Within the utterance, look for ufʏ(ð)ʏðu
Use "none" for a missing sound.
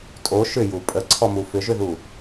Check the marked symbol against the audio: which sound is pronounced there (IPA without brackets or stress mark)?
ʒ